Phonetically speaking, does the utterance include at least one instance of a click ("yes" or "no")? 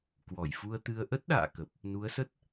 no